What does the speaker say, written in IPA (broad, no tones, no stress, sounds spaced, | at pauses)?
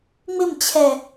ŋ͡m ɪ m t͡ɕʰ ɛ